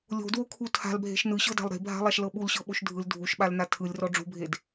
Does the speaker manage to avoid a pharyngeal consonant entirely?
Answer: yes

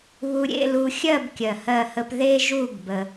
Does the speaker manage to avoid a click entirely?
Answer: yes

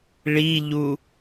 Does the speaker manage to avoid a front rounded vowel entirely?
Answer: yes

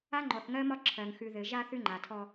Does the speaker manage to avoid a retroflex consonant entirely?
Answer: yes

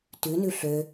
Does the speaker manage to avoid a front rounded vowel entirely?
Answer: no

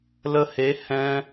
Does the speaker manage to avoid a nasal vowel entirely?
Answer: no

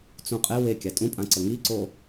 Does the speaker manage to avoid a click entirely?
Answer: no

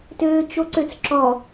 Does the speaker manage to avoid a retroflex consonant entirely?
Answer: yes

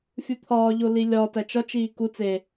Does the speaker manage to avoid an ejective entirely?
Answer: yes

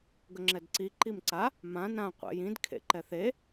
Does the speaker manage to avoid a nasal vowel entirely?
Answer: no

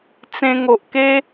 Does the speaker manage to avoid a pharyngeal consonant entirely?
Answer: yes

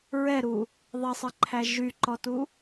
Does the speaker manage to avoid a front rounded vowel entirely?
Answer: no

